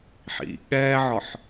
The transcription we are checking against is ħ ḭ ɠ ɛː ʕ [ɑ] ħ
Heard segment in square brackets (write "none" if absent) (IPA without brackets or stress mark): ɒ